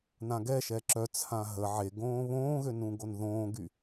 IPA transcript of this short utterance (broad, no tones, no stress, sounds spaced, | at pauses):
n ã ɡ ɛ ʃ ɛ ǁ œ t͡sʰ ã ɦ ə ʕ e ɡ õː β õː ɣ ø n ũ ɡ o n ð õː ɡ y